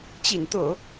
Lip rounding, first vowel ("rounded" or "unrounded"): unrounded